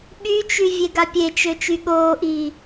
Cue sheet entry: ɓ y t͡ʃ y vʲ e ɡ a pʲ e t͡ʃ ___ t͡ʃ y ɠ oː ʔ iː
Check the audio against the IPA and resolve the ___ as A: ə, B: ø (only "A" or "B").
B